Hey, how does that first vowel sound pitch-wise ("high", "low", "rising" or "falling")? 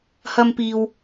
high